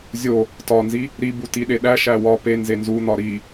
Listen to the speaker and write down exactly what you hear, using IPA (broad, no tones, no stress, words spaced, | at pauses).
zʲo | tɒnzi | ɾibu tiɗeɗæ ʃæwɒ pe nzenzun̪ɒ ɾi